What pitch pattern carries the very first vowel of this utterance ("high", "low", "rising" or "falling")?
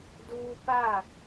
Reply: high